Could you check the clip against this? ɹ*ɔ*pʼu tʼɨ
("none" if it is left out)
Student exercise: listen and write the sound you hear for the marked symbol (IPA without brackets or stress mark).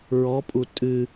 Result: ɔ